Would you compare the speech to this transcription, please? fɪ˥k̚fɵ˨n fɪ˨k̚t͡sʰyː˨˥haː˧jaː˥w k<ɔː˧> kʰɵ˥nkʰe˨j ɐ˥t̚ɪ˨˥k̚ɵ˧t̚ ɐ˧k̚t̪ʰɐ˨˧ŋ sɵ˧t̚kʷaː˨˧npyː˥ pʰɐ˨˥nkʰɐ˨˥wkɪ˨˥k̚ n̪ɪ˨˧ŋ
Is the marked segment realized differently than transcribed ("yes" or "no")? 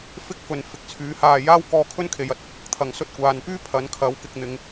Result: no